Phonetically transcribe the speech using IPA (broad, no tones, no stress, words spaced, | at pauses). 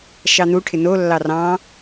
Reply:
ʃɑn̪uʈʰɪ nolːɑ rɑ̃